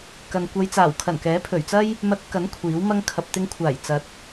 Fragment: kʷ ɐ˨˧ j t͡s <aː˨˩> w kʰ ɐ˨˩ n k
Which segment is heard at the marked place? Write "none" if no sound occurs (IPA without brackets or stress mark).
aː˨˩